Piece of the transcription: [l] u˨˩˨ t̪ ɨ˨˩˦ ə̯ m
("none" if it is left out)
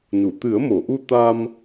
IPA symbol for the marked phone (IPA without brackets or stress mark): n